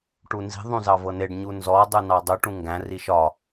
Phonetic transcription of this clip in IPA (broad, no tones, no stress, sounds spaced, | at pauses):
ʈ u n z i̤ ðˤ ũ z ɑ v ɤ n e ɖ ɲ u n z ɔ dˤ u n ɑ dˤ u ʈ ũ ŋ ɡ æ̃ r i ʃ ɒ